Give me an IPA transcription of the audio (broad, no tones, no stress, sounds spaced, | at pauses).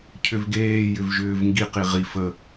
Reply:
cʰ ʏ v ɡ eː j ʏ v ʒ ʏː v ŋ ɡ i q i ʁ i f ə